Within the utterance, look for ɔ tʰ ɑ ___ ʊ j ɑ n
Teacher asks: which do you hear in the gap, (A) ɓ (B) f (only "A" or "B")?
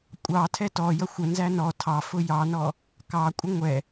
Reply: B